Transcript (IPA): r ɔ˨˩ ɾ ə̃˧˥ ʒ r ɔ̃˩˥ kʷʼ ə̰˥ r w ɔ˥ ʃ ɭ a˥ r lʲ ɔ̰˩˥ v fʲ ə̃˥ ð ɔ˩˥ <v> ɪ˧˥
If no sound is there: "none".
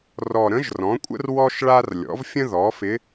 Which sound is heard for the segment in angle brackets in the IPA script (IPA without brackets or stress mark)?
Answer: f